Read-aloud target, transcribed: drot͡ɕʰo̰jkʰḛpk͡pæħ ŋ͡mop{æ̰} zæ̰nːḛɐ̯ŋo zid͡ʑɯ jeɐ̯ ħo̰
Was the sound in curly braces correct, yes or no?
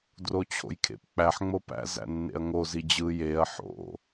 yes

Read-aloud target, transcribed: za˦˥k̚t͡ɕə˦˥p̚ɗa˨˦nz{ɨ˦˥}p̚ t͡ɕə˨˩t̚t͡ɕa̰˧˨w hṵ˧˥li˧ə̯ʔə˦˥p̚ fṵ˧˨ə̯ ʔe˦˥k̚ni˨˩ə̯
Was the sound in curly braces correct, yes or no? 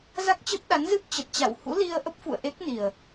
yes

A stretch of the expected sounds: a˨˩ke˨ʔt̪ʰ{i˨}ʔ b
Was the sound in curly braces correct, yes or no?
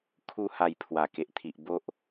yes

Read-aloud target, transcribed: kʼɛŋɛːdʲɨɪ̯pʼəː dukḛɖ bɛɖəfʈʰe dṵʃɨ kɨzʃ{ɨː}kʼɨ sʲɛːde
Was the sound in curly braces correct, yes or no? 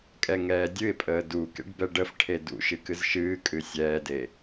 yes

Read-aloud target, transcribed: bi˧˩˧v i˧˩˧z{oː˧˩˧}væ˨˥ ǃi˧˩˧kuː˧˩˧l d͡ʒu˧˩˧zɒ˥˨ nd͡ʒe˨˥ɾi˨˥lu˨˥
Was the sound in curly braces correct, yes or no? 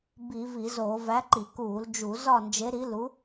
yes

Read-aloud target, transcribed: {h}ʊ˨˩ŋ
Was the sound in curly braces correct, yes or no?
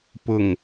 no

